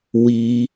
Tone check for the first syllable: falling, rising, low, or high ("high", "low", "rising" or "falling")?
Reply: high